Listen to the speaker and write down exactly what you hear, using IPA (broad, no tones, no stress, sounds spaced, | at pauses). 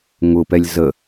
ŋ ʊ p ɛ lʲ z ə